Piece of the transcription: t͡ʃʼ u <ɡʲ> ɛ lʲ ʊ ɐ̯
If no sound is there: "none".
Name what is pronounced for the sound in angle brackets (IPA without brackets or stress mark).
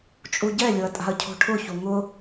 ɟ